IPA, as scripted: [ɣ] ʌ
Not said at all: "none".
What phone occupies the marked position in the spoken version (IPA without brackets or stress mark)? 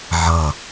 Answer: ʕ